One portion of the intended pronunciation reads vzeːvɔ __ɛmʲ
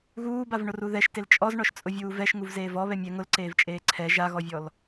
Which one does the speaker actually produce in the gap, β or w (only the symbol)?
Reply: β